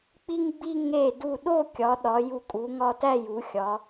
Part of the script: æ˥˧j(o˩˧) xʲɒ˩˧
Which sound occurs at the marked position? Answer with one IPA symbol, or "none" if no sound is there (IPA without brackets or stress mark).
u˩˧